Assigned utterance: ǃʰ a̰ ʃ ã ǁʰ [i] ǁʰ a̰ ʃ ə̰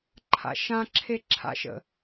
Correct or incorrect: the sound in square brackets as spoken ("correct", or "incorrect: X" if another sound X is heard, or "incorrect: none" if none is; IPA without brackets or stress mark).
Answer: incorrect: e